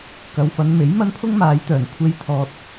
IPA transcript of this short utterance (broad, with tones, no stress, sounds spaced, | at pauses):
k ɐ˨˧ w f ɐ˨˧ n m e˨˥ j m ɐ˥ n pʰ ʊ˥ ŋ m aː˨˧ j t̪ œː˨˩ n kʷʰ e˧ j t̪ʰ ɔː˧ t̚